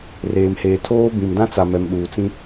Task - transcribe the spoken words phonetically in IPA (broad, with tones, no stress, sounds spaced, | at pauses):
r eː˨ m h eː˨ tʰ oː˦ b ĩ˨ m d ã˦ t͡s a˨ m ɛ˨ m ɗ uː˨ t͡s ĩ˦